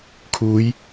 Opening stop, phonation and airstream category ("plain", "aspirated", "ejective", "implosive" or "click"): aspirated